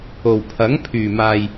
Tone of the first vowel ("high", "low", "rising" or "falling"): low